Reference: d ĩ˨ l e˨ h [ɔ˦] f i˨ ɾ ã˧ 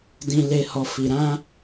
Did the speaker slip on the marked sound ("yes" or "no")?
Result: yes